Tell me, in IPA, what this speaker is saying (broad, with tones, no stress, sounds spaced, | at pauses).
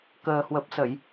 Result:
k əː˨˩ h w ə˨˩ p̚ s ə˧˩˨ j